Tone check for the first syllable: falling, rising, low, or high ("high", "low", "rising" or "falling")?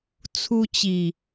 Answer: high